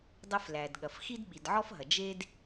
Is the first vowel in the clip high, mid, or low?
low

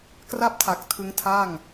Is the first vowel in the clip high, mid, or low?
low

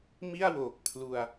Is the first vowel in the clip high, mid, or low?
high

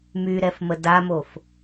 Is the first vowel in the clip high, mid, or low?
high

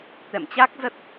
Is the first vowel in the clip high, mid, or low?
mid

